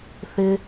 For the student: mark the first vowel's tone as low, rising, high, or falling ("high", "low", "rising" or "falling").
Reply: high